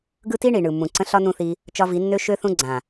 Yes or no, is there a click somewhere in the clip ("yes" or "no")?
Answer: yes